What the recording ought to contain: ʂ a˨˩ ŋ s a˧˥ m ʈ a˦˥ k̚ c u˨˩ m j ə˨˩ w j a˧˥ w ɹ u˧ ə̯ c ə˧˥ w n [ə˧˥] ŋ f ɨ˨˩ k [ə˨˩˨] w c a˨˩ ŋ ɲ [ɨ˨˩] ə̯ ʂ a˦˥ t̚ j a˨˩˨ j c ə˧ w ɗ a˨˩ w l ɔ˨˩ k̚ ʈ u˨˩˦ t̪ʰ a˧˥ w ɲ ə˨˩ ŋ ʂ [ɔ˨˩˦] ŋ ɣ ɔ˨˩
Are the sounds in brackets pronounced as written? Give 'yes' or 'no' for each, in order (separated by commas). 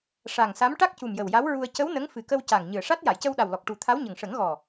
yes, no, yes, no